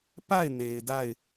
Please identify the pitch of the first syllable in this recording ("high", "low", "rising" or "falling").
falling